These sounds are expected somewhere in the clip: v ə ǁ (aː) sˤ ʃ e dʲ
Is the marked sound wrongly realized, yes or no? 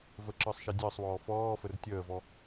yes